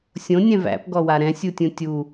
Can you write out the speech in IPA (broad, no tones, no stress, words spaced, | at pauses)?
sʲõnʲɛ̃ væ̰pɡɔwa ɾɛ̃sʲutʲũ tʲu